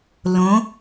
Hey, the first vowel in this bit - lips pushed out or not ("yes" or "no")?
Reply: yes